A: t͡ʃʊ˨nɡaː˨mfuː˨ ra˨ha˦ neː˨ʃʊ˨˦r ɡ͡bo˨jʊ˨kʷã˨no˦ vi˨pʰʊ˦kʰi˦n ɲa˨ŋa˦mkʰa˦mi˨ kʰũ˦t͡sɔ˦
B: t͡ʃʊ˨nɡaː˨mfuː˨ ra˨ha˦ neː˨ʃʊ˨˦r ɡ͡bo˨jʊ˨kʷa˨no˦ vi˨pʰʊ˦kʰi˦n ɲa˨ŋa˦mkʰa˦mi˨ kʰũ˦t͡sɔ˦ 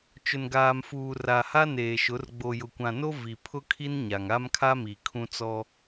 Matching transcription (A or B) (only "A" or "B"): A